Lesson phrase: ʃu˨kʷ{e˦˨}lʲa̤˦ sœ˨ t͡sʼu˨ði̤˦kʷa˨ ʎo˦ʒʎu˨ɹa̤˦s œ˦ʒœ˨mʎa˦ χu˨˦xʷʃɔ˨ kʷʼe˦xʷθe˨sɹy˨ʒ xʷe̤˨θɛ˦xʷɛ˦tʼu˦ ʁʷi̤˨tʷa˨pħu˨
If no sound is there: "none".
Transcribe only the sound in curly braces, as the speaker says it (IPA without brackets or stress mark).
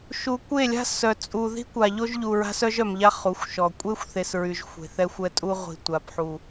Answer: e˦˨